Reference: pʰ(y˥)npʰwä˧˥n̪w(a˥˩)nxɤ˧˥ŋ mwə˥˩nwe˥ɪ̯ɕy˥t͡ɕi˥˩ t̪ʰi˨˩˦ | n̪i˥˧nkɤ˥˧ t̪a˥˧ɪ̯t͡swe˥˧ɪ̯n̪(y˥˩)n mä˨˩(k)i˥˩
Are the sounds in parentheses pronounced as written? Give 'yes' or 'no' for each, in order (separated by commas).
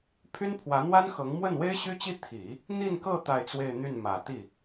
yes, no, yes, no